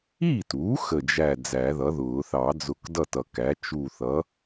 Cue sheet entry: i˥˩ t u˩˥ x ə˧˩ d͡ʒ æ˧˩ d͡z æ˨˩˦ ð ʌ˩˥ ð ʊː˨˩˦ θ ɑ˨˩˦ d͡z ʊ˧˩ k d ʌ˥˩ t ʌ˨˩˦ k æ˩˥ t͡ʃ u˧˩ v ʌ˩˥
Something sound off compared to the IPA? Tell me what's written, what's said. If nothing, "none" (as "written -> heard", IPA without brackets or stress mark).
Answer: v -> θ